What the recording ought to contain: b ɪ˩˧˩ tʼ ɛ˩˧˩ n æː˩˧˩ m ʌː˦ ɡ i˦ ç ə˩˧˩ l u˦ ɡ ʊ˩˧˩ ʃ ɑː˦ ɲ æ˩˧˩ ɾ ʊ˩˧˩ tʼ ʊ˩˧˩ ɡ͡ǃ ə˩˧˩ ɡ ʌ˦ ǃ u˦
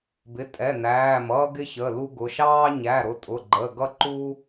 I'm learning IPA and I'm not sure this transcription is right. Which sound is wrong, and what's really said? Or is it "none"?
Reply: i˦ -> ɪ˦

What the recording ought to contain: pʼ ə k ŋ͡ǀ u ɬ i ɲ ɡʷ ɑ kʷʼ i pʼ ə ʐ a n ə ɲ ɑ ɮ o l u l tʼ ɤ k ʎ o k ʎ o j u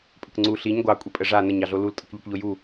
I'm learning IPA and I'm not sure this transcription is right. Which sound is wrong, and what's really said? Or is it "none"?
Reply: none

